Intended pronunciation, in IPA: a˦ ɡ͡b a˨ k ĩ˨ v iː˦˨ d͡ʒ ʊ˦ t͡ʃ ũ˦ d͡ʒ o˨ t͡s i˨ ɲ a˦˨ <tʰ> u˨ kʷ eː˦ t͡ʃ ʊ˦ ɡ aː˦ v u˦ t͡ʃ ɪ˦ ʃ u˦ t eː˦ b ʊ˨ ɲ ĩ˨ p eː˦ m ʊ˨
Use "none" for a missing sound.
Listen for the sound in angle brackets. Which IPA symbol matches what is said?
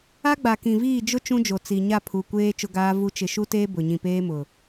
pʰ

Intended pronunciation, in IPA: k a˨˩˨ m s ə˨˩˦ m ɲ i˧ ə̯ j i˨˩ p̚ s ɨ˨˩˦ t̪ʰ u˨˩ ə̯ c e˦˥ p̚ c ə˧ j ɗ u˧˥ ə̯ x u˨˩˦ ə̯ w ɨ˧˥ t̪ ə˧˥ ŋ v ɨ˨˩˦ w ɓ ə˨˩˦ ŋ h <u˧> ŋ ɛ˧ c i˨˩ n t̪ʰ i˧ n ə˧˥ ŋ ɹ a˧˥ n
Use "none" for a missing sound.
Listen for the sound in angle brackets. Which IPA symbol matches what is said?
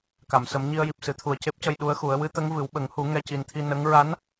u˨˩˦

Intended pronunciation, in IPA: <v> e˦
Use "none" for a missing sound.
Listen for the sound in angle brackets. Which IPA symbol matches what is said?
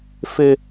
f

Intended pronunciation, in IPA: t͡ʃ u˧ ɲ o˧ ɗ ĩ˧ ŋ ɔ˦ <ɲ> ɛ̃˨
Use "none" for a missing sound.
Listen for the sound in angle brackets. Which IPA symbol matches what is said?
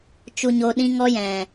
j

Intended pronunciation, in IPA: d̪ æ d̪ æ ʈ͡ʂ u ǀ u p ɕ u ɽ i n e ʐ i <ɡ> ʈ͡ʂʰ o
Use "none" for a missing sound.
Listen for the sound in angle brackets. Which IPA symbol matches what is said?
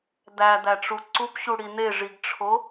ɡ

